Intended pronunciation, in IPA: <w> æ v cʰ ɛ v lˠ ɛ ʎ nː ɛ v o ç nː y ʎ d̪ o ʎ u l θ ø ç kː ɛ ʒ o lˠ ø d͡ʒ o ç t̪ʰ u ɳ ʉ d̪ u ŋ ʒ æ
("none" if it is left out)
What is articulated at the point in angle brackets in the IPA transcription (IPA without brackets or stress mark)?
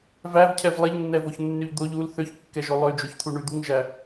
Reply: v